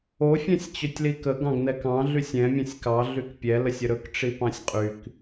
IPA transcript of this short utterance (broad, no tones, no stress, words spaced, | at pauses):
o fʲɛ̃sʲt͡ɕɵtʲlikə ɡɑ̃ɡnɛkɑ̃ ɮysʲɛ̃ mʲɛ̃sʲkɑ ɮykpʲɛ ləsʲəɾɵk ʈ͡ʂipɑ̃sʲqʼyk